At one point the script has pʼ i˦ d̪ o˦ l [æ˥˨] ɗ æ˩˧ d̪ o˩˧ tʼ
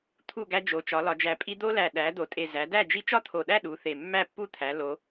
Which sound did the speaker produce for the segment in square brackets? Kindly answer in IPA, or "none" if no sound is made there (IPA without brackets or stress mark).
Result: æ˨˩